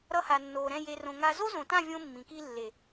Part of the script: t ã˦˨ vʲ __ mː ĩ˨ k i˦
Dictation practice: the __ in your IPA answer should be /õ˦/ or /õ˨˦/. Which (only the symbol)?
õ˦